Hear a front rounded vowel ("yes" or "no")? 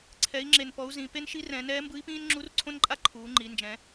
no